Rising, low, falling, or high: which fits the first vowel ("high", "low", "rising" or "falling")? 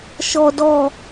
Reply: high